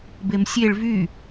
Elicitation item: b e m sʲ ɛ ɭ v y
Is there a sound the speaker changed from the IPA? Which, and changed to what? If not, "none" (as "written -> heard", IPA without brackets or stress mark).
ɛ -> e